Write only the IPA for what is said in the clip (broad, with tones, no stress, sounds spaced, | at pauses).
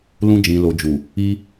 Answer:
l ũ˧ d͡ʒ ĩ˨ l o˨ d͡ʒ u˨ | i˧